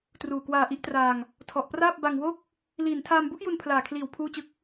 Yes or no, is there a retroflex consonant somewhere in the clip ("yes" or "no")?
no